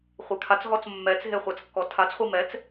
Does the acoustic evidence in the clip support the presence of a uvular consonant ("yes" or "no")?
yes